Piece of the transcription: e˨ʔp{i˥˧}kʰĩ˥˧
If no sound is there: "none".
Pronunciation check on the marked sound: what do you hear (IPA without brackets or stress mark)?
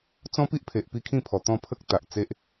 i˥˧